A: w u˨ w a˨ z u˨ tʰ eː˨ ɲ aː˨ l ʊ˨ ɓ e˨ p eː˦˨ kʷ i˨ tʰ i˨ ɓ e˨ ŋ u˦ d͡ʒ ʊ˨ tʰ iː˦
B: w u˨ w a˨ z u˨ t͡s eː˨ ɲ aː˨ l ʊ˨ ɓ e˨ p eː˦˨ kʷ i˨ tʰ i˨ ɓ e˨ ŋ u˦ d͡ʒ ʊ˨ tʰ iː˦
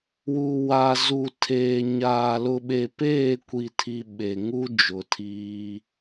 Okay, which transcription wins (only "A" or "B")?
A